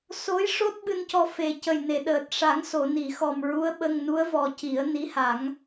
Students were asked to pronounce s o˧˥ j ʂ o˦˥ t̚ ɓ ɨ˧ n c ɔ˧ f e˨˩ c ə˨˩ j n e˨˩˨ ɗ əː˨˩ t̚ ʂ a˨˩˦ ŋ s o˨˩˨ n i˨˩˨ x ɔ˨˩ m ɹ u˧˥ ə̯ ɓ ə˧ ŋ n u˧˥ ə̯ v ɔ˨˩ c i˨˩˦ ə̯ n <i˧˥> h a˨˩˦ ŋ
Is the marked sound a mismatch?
no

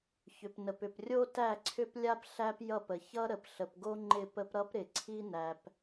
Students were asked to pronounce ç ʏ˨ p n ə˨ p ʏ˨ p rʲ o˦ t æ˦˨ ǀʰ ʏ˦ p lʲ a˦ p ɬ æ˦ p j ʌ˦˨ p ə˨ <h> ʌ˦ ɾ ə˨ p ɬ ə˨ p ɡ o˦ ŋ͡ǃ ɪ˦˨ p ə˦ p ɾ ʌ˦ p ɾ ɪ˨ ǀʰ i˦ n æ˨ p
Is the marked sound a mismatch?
yes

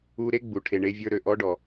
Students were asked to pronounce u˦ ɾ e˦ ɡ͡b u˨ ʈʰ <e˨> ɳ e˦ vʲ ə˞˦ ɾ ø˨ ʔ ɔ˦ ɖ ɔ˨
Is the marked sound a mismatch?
no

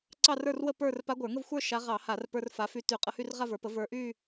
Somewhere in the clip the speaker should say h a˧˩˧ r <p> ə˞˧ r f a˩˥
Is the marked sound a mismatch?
no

